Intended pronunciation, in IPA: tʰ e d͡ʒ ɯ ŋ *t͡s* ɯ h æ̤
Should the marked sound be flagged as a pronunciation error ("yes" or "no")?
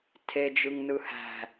yes